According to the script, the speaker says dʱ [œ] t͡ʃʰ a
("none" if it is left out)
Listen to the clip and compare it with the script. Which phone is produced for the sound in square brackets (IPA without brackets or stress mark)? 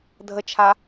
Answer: ə